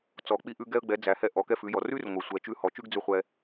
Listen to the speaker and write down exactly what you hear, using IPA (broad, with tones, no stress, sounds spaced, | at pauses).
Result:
t͡s ɔ˩ k͡p i˧ ʔ ʉ˧ ɡ ɛ˧ ə̯ ɡ͡b ɛ˩˧ d͡z æ˩ h ɛ˧ ʔ ɔ˩˧ k ɛ˧ f ʉ˩˧ j ɔ˩ r ʉ˥ r ŋʷ ɛ˩ sʷ ɛ˩˧ t͡ʃ ʉ˧˥ h ɔ˩˧ t͡ʃ ʉ˥ ɡ d͡z ʉ˧ χʷ ɛ˧